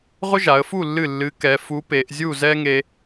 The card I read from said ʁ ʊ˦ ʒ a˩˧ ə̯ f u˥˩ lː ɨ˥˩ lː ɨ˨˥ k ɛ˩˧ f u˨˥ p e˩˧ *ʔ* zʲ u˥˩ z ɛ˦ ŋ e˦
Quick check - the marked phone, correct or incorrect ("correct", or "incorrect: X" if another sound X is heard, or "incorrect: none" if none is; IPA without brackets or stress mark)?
correct